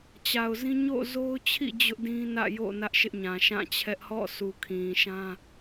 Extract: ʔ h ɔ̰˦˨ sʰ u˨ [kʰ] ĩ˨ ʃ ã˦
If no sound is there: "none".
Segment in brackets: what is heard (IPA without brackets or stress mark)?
kʰ